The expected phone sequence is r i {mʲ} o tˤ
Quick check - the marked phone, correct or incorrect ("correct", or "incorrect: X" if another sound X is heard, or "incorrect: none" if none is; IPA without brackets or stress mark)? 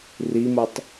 incorrect: m